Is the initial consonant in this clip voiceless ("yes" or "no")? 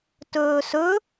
yes